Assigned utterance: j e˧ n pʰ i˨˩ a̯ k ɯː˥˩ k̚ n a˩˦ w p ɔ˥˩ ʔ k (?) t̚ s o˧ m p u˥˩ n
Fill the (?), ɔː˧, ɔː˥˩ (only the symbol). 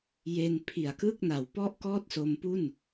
ɔː˥˩